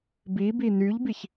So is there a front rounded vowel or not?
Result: yes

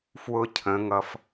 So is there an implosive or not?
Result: no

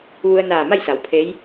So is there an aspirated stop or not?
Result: yes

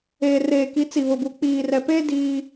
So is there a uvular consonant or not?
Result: no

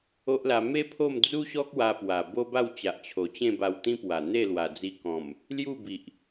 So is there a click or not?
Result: no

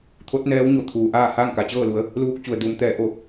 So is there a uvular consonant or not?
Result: no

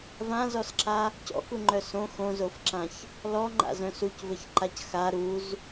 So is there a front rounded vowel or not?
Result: yes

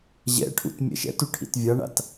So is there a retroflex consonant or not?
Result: yes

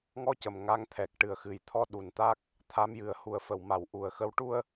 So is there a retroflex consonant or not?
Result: yes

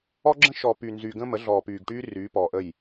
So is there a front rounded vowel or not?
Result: yes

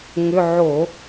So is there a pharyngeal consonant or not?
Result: yes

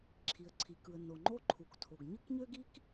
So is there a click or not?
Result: yes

